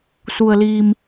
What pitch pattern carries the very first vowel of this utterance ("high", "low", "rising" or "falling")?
low